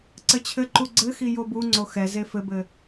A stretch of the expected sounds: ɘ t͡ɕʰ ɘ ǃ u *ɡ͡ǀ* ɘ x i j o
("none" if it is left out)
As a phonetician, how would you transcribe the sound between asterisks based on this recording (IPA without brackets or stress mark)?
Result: ɡ͡ǀ